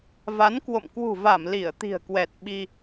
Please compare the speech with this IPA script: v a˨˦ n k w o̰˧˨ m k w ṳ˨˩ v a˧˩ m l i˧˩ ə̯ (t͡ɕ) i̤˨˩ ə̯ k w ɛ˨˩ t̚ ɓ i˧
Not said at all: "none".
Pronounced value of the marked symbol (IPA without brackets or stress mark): t̪